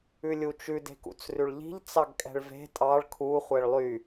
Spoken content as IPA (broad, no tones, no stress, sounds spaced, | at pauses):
ʉ lʲ u t͡ʃ ʉ d e̤ k ṵ t͡s r ʉ ɭ ʎ i̤ ʎ t͡s ɑ ɡ kʼ ɛ̤ ɭ v e̤ tʼ ɑ ɭ kʰ u χʷ ɛ ɭ lˠ y